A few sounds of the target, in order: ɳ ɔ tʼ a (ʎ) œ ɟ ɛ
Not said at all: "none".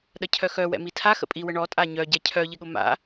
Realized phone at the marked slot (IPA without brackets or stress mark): ɲ